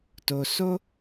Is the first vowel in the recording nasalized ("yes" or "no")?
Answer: no